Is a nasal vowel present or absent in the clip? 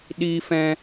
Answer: present